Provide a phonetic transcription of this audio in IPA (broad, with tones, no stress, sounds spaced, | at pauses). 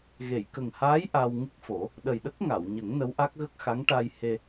ɣ e˨˩˨ j k ə˨˩ ŋ h aː˧˥ j ʔ a˧ w ŋ ɨ˦˥ k̚ f o˨˩˦ | ɗ ə˨˩ j ɗ ə˦˥ k̚ ŋ a˨˩˨ w ɲ ə˨˩˦ ŋ n ə˧˥ w ʔ a˦˥ k̚ ɣ ə˦˥ k̚ x a˧˥ ŋ ʈ a˧ j h e˧